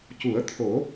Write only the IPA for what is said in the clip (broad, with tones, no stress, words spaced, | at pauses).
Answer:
cu˨˩˦ə̯t̪ʰo˨˩˦